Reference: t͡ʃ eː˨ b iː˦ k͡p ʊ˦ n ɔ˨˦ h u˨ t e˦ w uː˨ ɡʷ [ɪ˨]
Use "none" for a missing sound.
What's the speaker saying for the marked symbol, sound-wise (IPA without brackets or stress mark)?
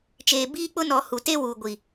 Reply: i˨